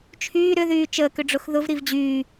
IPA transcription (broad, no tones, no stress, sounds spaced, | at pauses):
t͡ʃʰ yː ɾ ʏ ð yː t͡ʃ əː k ʏ ɖ͡ʐ ʊ x ð ʊ v ɾ i v d͡ʑ yː